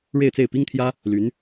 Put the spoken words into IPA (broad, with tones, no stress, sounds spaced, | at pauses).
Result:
ɻ e˥˧ ɪ̯ t͡s e˥˩ ɪ̯ p i˥ ŋ t̪ʰ j ä˥ | l y˧˥ n